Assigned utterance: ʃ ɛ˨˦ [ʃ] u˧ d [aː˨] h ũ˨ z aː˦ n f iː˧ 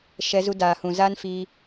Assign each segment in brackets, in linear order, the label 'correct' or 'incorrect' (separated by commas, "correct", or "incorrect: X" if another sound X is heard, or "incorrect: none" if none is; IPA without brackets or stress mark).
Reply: incorrect: z, correct